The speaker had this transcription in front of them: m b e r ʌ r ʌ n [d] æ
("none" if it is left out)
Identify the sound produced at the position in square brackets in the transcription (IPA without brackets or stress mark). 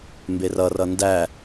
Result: d